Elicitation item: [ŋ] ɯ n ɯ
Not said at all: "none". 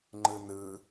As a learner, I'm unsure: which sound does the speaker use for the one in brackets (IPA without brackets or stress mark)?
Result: ŋ͡ǃ